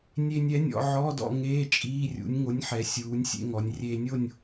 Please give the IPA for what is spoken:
nʲe˧nʲɛ˩˥nʲɔ̰˩˧ ʕɔ˧˥˧dɔ̰˧ ŋeː˧˥˧t͡ʃʼiː˧˥˧rʲṵ˩˥nʲ ŋo˩˥nʲħɛ˩˧ sʲuː˩˧nʲsʲḛ˧ ŋɔ˩˧nʲrʲeː˧nʲo˥˨nʲ

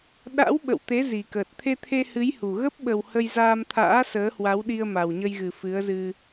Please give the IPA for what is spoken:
ɗa̰˧˥w ɓə̰˧˨wt̪e˨˦ zi˨˩kəː˨˩t̚ t̪ʰe˧t̪ʰe˧hɨ˨˦j hu˨˩ ɣə˦˥p̚ɓə˨˩w hə˧jzaː˧mt̪ʰa̰ː˧˥ səː˨˦hwa˨˦wɗi˧ə̯ ma˨˩wɲə˧jɣɨ˨˩ fɨ˨˦ə̯zɨ˧

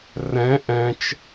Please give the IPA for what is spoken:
rɛ̃ ʔɛ̃t͡ʃ

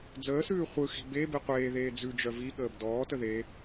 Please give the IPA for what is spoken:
d͡zəːsʉː χʷɯxi̤ be biqʷeːðeː d͡zʉd͡ʒœ viɠəːb dɔːtə ðe

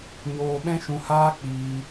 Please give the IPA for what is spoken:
ɲoː˧ɓɛ̃˦ʃũ˧haː˦ k͡piː˧

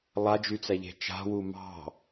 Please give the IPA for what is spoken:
lˠad͡ʒyt͡sæʎe̤ t͡ʃa̤wu mɑ̤

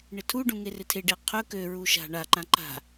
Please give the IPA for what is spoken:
ɳɪtʰuɖũ ŋerɪtʰeɖe qʰɵ køɹu ʃa̤ ɳaǃã ǃa̤

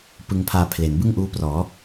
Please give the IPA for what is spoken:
pɯ˧ŋpʰaː˧ pʰle˩˦nbɯ˥˩ŋʔuː˦˥prɔː˩˦

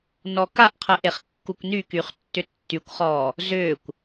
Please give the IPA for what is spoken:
nɔkaʔqʰə ʔeχkːukʷnykyχ tːʏtːykʷχɔː | zʏːkʷ

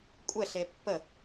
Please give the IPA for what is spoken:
kʷʼɛɬe pːə

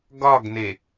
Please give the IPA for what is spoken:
ɡɒɡne

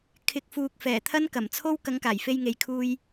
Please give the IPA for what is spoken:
kʰɪ˨˥k̚ fuː˨k̚fɛː˨˩ t̪ʰɐ˥nkɐ˨˩mt͡sʰo˥w kɐ˨˥ŋkaː˨˩jfe˧jŋe˨j kʰuː˧j

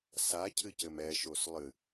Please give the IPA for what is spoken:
sacʰɨcɘm ɛʃos lˠɨ

